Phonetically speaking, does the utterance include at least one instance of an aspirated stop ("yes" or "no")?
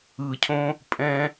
yes